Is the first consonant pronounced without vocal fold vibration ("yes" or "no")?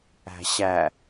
yes